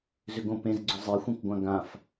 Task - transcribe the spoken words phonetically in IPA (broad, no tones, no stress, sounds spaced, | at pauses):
z ʏ ɡ õ p ẽ z ɡ͡ǀ ʊ zˤ e xʷ ẽ k ɡʷ ã ɡ ã f